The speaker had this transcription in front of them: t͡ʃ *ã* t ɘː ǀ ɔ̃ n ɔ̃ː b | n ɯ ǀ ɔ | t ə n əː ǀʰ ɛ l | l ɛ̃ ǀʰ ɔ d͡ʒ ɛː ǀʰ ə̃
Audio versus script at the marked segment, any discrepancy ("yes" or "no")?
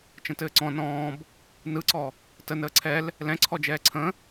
yes